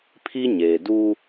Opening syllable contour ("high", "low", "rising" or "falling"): high